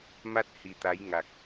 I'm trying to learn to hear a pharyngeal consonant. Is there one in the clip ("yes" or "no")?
no